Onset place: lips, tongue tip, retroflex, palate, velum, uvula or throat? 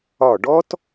retroflex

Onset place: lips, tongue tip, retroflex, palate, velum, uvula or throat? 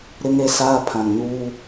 tongue tip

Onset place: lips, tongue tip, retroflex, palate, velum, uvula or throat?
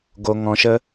velum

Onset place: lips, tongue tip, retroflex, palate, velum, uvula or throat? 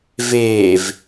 lips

